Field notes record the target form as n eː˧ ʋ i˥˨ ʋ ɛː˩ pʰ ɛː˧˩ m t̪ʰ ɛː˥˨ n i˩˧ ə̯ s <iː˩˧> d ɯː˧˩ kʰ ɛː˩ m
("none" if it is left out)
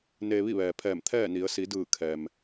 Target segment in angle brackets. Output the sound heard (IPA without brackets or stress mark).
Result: i˩˧